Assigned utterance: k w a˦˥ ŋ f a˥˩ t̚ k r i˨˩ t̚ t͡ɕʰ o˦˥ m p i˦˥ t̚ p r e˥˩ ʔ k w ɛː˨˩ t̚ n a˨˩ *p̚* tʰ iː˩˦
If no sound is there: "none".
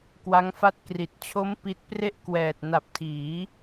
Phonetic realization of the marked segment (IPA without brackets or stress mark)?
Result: p̚